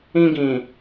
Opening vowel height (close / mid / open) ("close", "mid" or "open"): close